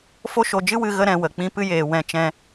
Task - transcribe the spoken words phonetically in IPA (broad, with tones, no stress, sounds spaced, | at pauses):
f o˦ ʃ o˧ d͡ʒ ɨ˦ w ɨ˧ ɣ ə˦ ɾ ɛ̃˧ w ə˨ k͡p ĩ˧ p ɨ˧ j eː˨ w ɛ̃˧ t͡ʃ ɛ̃˧